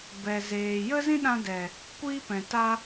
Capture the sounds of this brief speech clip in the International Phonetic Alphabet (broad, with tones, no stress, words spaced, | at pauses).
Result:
bɛ˨zeː˨ jə˦zĩ˦ɗã˧ dɛ˨ | kʷiː˦ pɛ̃˨ ta˧